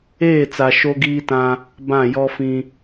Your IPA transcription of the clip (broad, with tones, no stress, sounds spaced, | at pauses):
eː˦˨ t͡s a˨ ʃ o˦ ɡ iː˦ t ã˦ | b ã˦˨ j ɔ˦ f ĩ˦